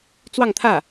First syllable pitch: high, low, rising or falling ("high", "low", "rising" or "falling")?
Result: falling